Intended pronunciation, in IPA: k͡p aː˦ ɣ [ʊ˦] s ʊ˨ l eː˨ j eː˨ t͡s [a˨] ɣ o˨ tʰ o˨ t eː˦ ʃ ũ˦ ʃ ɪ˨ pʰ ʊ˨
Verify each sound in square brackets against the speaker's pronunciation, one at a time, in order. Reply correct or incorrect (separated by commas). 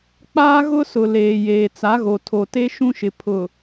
correct, incorrect